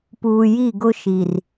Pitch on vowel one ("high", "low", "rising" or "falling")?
low